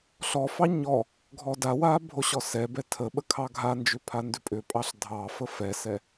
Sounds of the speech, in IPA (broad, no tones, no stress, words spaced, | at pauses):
ɬɔfɑ ɲɔ | ɡʱɔdawa bʱoɕɔsɛbɛ tʰə ɓəkʰɑɡʱand͡ʒʏ pʰandʏpʼʏpʼɑɬ dʱɑfə fɛsɛ